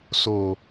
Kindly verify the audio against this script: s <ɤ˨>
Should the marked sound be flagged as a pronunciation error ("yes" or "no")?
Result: yes